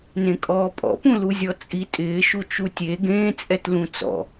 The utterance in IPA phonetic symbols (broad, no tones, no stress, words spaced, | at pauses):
nẽkʼɔːpʼɔ̰pũ luzʲɔt͡sʼi tʼɪːʃu t͡ʃutʲe ɡẽːt͡sʼɛtlũ t͡sɔ̰